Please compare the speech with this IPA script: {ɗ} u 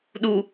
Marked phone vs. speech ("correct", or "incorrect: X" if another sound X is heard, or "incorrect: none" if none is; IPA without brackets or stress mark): correct